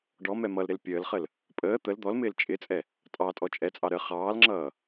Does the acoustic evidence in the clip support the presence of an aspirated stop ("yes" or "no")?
no